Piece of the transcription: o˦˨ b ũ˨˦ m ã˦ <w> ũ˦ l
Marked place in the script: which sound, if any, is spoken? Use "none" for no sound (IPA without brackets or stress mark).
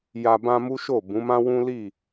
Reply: w